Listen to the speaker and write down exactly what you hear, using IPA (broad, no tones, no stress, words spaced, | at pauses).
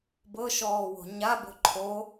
bɤʃɔːwo̤ ɲabo̤ ǃʰo